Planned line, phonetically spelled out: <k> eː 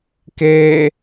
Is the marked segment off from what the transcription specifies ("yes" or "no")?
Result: no